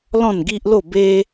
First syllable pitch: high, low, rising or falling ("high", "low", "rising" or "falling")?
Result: falling